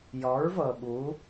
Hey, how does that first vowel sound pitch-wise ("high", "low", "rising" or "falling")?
rising